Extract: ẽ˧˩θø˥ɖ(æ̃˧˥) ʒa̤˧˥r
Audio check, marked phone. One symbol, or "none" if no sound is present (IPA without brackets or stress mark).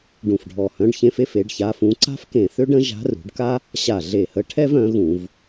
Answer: ə̃˧˥